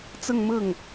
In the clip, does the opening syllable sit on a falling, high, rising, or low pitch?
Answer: falling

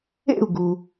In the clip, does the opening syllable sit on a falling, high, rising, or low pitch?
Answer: falling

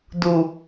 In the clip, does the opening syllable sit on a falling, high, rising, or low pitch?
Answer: low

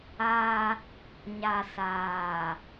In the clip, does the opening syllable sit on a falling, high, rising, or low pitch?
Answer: high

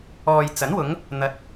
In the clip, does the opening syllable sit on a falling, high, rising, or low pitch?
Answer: low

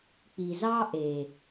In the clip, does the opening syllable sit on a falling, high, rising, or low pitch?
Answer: low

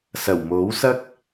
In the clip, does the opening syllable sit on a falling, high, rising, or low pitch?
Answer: low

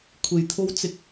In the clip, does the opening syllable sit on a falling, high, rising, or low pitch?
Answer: low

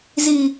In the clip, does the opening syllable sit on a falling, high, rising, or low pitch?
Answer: low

